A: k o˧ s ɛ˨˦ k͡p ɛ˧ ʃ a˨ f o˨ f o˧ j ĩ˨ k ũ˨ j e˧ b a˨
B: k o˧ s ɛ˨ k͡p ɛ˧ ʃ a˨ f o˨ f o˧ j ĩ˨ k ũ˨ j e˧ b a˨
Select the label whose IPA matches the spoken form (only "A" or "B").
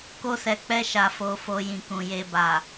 B